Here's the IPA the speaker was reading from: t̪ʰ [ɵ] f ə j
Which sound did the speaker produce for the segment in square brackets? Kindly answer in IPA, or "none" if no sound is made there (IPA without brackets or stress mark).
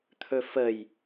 ɵ